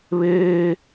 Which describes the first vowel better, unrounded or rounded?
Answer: unrounded